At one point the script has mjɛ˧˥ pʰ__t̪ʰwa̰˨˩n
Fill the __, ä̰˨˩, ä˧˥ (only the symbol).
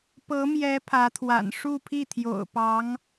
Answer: ä˧˥